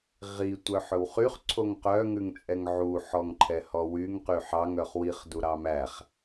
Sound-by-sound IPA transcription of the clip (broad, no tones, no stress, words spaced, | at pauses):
ʁi tʷœħɵwχyχ ǀʰoŋqœ ŋʉŋt͡sʼɛŋʕu ħɔŋǃʰɛhɔwyŋ qyħɑŋ œχwiχ duɾɑmæχ